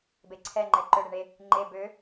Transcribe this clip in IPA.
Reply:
b e ǀʰ ɛ ŋ͡ǃ ɛ ǃ ø ɽ e ɳ e | ŋ͡ǃ e b ø

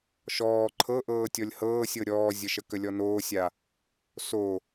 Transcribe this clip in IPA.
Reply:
ʃ ɔː ǃʰ ɤ ʔ ɤː tʲ ɔ lʲ h ɤː sʲ ɤ ɾʲ ɔː zʲ ə ʃ ə k ə lʲ ɔ n oː sʲ a | s o

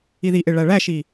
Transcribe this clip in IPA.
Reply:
i ð i ʔ e ɭ æ ɭ æ ʃ i

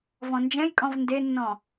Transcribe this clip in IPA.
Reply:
v ɔ̃ n d͡ʒ ɛ̃ j kʼ ɔ̃ v n d e nː ɔ̃

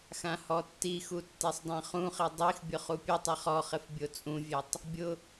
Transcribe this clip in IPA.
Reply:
x ã h ɔ tː i x u tː e sˤ dˤ ã χ ũ χ i dˤ i x bʲ ʊ χ u pʲ ʊ tˤ ɛ χ ɔ χ ɪ f bʲ o t͡sʼ ũ vʲ ɛ tˤ | bʲ ʊ

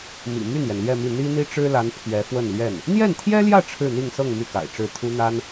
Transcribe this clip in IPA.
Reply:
m ḭ˨˩ m y˥˩ n j ɛ˩ n l ɥ ɛ˥˧ m i˥˩ n̪ i˥ n̪ i˥ ʈ͡ʂ ɻ̩˥ l a˧˥ n pʰ ɥ ɛ˧˥ f w ə˥˧ n l ɥ ɛ˥˩ n | n̪ j ɛ˥˩ n t̪ʰ j ɛ˥ l j ä˥˧ ʈ͡ʂʰ ɻ̩˥˧ n̪ i˥˧ ŋ s ɤ˥˧ ŋ m y˥˩ k a̰˨˩ ɪ̯ ʈ͡ʂ ɻ̩˥˩ t̪ʰ u˥ n̪ a˥ n

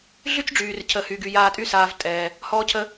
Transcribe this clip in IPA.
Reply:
ɮ y˥ t͡ʃ ɖ͡ʐ yː˩ r cʰ ə˩ h yː˩ ɡ y˩ j aː˧ tʼ y˥ s aː˩ v tʼ ɛː˩ | h ɔː˧ cʰ ə˧

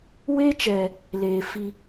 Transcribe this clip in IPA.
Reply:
w e˦ t͡ʃ ɛ˨ | l eː˨ f i˦

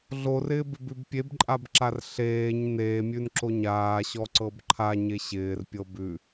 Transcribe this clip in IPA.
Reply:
ɮ o r ɪː b ɪ b ʉ b pʲ e b ǃʼ a b ǁ a r ɬ eː ɲ n eː mʲ ʉ n ǁ o ɲ aː ɕ ɔ ǀ ɤ b ǃʰ a ɲ e ɕ ɪː r pʲ ɤ b ʉ

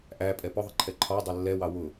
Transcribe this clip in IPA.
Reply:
ʔ æ pʼ ɛ p ʊ ðˤ ɪ ǃʰ ɛ ǃʰ ɒ dˤ ʌ lː ɛ w ɑ w ʊ

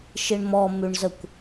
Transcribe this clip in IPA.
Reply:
ʃ i ɳ m ɔ m ʉ ɳ z ə kʷ

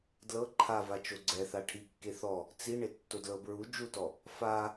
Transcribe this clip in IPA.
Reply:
d l ɤ ǃʰ a v a t͡ʃ o ɡ͡ǀ ɛ θ a ʈʰ i kː e θ ɔ | t͡s i ɳ e tː o d l ɤ b ɹ u d͡ʒ u t ɔ | f a

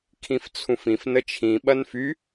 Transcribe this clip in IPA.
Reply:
kʰ ĩ f t͡sʰ ũ f ĩ f n ə t͡ʃʰ ĩ ɓ ɐ n f y

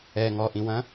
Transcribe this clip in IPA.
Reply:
ɛ ŋ ɔ ʔ ĩ w ɐ̃

